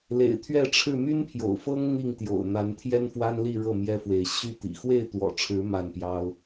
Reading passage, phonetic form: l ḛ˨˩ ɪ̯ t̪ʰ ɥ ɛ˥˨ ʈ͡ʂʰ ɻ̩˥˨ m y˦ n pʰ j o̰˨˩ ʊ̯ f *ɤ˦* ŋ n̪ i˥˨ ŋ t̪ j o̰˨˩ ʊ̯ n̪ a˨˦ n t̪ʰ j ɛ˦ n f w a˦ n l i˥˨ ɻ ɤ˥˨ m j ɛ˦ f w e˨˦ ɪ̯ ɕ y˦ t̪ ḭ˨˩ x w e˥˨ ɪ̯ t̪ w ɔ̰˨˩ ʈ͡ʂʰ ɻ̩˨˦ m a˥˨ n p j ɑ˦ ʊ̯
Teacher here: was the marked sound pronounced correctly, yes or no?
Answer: yes